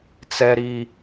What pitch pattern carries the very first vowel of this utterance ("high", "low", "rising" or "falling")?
high